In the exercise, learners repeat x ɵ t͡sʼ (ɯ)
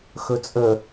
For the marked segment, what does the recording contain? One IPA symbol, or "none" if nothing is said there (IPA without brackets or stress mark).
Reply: ə